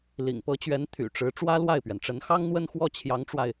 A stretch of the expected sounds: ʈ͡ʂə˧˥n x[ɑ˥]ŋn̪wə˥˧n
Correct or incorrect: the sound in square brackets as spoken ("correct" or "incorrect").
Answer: correct